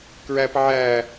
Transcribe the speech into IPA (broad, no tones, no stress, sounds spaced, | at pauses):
k ɹ æ p ʕ æ